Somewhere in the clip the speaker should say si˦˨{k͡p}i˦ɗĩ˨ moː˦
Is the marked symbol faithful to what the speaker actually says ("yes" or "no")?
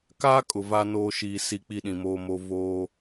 yes